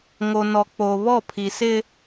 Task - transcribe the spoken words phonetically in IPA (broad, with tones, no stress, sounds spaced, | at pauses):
ŋ o˨ n ɔ˨ k͡p o˨ β ɔ˦˨ pʰ i˨ s ɪ˦